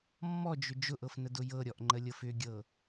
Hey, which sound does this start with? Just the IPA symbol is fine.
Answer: mː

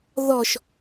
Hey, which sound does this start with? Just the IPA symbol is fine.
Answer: ð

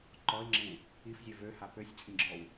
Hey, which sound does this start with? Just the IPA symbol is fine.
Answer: ǃ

